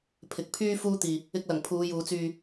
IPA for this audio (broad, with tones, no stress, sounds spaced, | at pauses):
pʰ ɪ˨ k̚ pʰ yː˥ f uː˥ t̪ iː˨ | ɪ˧ k̚ l ɐ˨˩ ŋ pʰ uː˨˧ j uː˨˧ t͡s yː˧